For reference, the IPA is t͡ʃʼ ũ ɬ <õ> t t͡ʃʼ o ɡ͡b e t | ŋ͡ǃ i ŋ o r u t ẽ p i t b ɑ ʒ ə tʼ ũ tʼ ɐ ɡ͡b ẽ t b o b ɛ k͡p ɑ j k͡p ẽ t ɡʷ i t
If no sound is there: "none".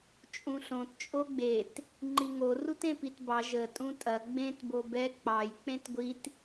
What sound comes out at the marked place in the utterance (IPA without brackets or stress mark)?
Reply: õ